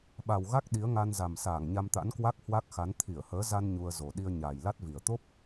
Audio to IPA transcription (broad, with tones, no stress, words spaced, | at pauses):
ɓa˨˩wɣa˦˥k̚ ɗi˨˦ə̯ŋa˧nza˨˩m saː˧˩ŋɲa˧mt̪a̰˧˥nkwa˦˥k̚ hwa˦˥k̚xa˨˦n t̪ʰi˧˩ə̯həː˨˦za˧n ɲu˧ə̯zo˨˩ ɗi˧ə̯ɲaː˨˩j la˦˥t̚vi˨˩ə̯ t̪o˦˥p̚